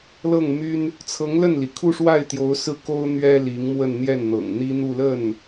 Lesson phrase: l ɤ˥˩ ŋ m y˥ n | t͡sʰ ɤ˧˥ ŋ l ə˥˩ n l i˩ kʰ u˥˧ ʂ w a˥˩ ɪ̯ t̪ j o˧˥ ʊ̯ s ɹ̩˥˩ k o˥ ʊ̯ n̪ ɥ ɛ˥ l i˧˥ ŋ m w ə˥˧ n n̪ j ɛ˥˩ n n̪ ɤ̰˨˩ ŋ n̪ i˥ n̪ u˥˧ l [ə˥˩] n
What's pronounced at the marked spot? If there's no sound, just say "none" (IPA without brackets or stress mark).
ə˥˩